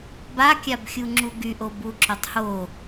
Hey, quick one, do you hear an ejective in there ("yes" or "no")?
no